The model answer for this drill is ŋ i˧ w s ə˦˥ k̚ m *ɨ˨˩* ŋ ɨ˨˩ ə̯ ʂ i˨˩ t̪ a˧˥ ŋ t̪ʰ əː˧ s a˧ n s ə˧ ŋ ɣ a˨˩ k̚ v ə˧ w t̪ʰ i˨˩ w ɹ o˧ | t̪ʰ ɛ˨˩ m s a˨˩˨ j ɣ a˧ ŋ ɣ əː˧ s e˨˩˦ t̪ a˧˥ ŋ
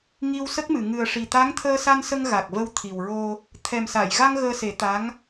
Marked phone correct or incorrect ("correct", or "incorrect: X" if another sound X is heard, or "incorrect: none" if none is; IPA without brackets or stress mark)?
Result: incorrect: ɨ˨˩˨